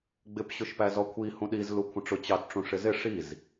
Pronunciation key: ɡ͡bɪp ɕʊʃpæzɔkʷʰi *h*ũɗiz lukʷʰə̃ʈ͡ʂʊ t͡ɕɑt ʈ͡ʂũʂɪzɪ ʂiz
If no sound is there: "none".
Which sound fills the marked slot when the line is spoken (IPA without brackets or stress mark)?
h